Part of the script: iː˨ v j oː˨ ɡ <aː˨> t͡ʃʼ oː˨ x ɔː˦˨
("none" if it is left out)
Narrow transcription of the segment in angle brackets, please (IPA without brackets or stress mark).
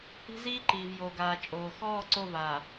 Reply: aː˨